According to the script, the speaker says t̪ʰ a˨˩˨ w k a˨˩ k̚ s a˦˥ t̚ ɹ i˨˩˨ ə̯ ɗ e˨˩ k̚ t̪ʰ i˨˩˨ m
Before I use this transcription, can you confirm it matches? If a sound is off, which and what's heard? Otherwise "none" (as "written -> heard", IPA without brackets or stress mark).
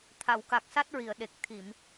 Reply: none